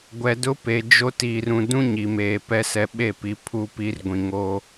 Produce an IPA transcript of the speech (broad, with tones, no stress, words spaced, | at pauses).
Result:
ɡʷɛ˨dʊ˦pe˨ d͡ʒo˦ tiː˨rũ˨dũ˦ ɲi˨meː˨ pɛ˦sɛ˨ɓe˦˨pi˨ pʰu˦pi˦r ɡʷĩ˨ŋo˦